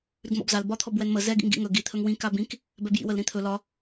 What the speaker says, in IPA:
ɾʉɡmɔ̰bzal bɒt̪ʰɔbwɛnmə zɛ ɡḭŋɡḭŋɵ ɡi t̪ʰɵŋwĩ kabĩk | bɛbjḭwəl ɾĩt̪ʰɵ lɒ

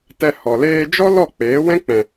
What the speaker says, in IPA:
tɛ˧hɔ˨ leː˧d͡ʒɔ˦ lɔ˦˨k͡peː˨˦ wɛ̃˦k͡pɛ̃˨

